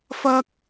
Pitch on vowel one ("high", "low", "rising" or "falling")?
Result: high